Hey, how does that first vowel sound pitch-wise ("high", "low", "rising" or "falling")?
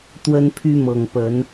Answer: high